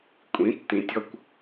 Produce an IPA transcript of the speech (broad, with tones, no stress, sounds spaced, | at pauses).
kʷʼ ĩ˨˦ tː ĩ˧ tʲ ɔ˦ kʷ